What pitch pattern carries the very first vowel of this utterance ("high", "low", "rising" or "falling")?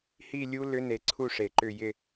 falling